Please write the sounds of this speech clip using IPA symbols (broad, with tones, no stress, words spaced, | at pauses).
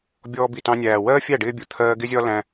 bʲɔː˧bi˨tɑ̃˧nʲæː˨ wɜː˦fʲæ˦˨ ɖɪː˦bʲʊ˨ t̪ʰɜː˧ ɡɪ˦zʲɒ˦ læ̃˧